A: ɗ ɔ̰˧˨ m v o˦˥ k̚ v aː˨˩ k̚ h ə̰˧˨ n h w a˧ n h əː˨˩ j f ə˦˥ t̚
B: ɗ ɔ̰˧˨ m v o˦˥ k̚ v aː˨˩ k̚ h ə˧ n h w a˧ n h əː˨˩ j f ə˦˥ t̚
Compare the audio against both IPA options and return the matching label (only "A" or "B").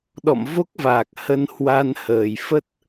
B